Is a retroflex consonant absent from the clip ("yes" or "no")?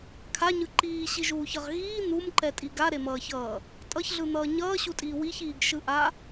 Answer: yes